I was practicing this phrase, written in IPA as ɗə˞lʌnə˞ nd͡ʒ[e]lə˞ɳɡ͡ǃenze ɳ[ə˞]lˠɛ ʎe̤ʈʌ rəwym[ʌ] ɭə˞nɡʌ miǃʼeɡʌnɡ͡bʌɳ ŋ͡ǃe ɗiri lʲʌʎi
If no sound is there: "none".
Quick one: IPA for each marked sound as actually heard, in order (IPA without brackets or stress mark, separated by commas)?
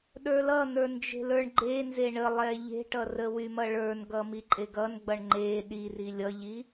e̤, ə, ʌ